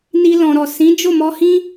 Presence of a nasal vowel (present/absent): present